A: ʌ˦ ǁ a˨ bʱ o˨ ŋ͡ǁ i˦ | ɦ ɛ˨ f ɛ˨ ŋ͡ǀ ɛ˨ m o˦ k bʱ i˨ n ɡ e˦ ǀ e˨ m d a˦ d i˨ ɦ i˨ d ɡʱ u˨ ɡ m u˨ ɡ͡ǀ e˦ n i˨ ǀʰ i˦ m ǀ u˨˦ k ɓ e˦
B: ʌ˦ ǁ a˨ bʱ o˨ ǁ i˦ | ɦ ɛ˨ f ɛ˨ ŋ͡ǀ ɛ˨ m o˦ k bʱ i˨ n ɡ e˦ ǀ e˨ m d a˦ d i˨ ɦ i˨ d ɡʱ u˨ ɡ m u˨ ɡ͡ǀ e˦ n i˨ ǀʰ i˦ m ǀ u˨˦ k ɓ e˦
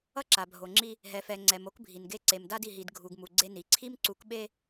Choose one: A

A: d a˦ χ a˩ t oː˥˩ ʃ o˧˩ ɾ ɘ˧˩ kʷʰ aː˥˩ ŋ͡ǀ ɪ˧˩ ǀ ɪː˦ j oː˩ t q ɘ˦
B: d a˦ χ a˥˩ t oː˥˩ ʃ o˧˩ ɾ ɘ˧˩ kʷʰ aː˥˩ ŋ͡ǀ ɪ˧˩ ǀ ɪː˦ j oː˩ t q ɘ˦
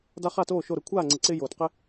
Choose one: B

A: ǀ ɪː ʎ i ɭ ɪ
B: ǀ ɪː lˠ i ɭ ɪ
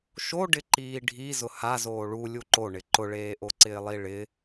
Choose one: B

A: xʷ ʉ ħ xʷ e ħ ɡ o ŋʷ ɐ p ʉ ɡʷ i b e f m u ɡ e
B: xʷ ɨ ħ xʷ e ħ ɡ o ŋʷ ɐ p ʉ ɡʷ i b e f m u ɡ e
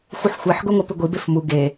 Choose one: B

